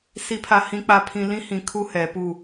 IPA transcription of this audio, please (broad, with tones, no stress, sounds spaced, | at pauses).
s i˨ pʰ a˨ h ĩ˨ k͡p a˨˦ pʰ ĩ˨ l ĩ˦ h ĩ˨ kʰ u˦ h ɛ˨˦ p u˦˨